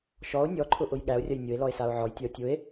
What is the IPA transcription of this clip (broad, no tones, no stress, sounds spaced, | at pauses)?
ʃ ɔ o̯ nʲ ɔ ǃʰ ʊ ʔ ʊ j ɠ æ o̯ rʲ ɐ j nʲ ʊ e̯ l ɔ e̯ s a o̯ ʕ ɔ j tʲ ɐ o̯ tʲ ʊ e̯